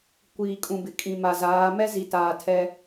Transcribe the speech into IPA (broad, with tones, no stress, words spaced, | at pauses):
kʷiː˨kʼũ˨bɪ˨ kʼĩ˨ma˨zaː˨˦ mɛ˦zi˨ taː˨tʰɛ˦